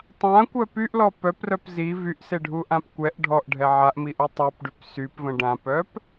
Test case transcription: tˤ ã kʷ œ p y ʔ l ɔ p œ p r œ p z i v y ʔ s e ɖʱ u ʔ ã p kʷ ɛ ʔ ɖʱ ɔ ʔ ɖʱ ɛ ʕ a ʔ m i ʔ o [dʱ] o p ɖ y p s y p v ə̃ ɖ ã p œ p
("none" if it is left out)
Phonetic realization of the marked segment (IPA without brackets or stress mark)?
tˤ